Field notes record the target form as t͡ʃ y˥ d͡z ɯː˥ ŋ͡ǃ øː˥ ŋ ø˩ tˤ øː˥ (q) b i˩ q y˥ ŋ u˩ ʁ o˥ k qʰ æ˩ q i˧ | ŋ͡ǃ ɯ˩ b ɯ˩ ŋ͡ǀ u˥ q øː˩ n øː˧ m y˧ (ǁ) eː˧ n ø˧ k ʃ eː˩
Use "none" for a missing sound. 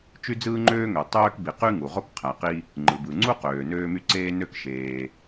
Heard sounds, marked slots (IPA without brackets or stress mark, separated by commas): k, ǀ